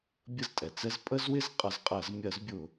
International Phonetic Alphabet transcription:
bʲə˥˩ztʼɛ˩t͡sɛ˥z pʼə˥zwɪ˥z qʼʌ˨˦zqʼɜ˧˩˧z mʲɜ˧˩˧zbʲʊ˧˩˧

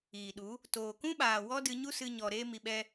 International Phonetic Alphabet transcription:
iː˨ɗu˨˦ | toː˨kũ˦ɓaː˨ wɔ˦dɨ˧ɲu˦ sɨ˦ɲɔ˧ ɾeː˦mi˧ɓɛ˦

